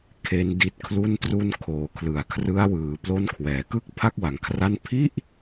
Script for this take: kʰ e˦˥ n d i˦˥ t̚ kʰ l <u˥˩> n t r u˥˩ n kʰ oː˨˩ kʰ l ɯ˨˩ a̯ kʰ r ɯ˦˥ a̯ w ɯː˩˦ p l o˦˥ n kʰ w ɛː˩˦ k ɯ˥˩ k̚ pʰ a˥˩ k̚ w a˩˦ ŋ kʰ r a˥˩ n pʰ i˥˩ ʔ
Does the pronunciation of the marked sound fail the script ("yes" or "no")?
no